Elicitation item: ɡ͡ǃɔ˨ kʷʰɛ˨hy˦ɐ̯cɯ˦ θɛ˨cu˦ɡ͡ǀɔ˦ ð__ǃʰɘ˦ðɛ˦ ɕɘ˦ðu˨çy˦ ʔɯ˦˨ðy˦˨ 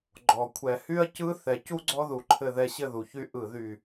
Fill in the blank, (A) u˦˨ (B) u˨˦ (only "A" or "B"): A